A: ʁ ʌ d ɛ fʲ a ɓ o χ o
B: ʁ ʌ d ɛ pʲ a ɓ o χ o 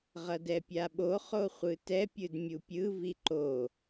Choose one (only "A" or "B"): B